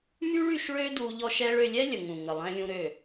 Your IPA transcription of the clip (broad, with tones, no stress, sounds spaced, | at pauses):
m y˦ ɭ y˧ ʃ ɭ ø˦ d u˧ ʎ ɔ˦ ʃ ɛ˦ ɭ ø˧ lʲ ɛ˦ lʲ ə˨ ŋ ũ˨ ŋ ə˨ lˠ ɛ̃˧ lʲ ũ˧ ɾ ø˦˨